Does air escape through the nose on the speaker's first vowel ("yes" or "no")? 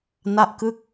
no